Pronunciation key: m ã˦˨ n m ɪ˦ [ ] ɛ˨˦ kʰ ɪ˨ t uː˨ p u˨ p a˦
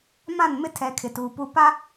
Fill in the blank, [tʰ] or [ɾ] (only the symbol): tʰ